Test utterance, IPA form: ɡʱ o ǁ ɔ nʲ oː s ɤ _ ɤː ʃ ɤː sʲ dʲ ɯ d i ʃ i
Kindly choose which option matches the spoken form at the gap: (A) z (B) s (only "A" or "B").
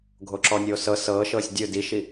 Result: B